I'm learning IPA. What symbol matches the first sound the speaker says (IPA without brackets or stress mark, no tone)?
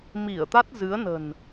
m